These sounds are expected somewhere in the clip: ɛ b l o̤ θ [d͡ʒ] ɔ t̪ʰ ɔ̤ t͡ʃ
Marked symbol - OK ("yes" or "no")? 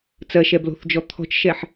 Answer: yes